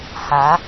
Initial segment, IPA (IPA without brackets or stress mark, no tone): h